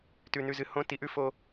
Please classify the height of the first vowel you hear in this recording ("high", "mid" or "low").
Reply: high